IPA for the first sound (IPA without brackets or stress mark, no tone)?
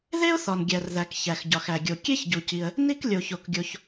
ð